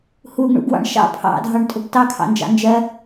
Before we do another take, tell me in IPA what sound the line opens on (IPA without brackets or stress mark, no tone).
h